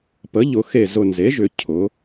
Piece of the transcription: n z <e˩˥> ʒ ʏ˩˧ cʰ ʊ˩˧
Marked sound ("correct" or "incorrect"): correct